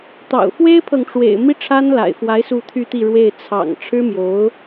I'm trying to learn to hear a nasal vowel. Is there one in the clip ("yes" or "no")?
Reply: no